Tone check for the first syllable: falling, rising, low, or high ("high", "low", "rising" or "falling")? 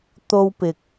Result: high